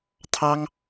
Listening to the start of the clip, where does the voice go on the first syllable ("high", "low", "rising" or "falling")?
high